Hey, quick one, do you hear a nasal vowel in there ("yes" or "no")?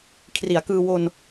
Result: no